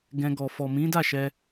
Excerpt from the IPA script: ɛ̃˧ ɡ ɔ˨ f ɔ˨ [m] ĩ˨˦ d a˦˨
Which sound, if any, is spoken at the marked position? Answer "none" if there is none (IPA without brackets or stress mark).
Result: m